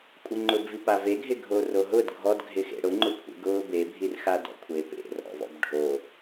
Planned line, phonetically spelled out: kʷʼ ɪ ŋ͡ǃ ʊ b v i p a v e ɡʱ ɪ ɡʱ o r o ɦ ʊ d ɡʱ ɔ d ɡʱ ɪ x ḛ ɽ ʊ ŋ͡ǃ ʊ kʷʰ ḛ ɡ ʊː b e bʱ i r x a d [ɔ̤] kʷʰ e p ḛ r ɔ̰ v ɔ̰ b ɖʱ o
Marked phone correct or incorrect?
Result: incorrect